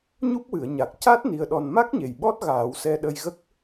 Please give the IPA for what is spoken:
ɲu˦˥p̚wɨ˨˩˨ə̯ɲa˨˩k̚ ca˦˥t̚ ni˧ə̯ɗɔ˧n ma˦˥k̚ɲe˨˩j ɓɔ˦˥t̚ ɣaː˨˩˦wsɛ˧ɗə˧jɣə˦˥k̚

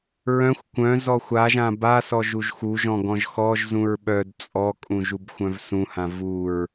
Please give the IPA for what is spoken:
ɹœ̃xʷ kʷœ̃ zɔxʷaʒã basɔ ʒuʒxuʒɔ̃ ɡɔ̃ʒxɔʒzũɹ ɓœd t͡sʼɔkʼũ ʒubxʷœ̃vsũhã vuɹ

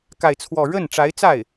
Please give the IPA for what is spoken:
ka˥˧ɪ̯t͡sʰwɔ˥˧ ɻə˥˩nʈ͡ʂa˧˥ɪ̯t͡sa˥˩ɪ̯

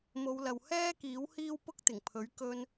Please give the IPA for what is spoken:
mo˨˧wlɐ˨w hɛː˥kiː˨˥w hiː˥wpʊ˥k̚t̪ɪ˨˩ŋpʰɵ˨˥ɥ kɵ˧n

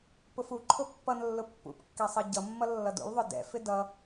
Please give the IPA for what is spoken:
pʊfuǃʰʊ pːʌnlːʊ pːṵpkːɛ sˤʌɟʌmːʌ lːʌdṵlðˤʊ dɛ̰fɪ dʌ

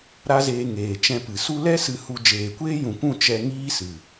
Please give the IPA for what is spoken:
ɾa˦zeː˧ ŋeː˨t͡ʃɛ̃˧pɨ˨ su˧lɛ˦ sɨ˧hu˧ d͡ʒeː˨kʷeː˦jũ˨kʷũ˦˨ t͡ʃɛ˧ ŋiː˦sɨ˨

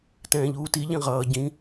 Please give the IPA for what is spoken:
tɛ̃ːʎuːti ʎĩʁʌː ɟĩ

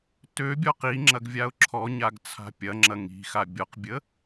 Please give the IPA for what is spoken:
tøbʲɔ qiŋ͡ǁɐɡ vʲaʊ̯ǁʰɔɲaɡ t͡sʰa̤pʲɐŋ͡ǁɐ ŋi̤xa bʲɔqbʲə

